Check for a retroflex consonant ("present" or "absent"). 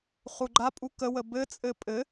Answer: absent